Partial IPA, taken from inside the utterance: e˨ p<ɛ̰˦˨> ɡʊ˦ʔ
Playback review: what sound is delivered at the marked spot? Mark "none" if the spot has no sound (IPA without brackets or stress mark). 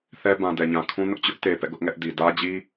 ɛ̰˦˨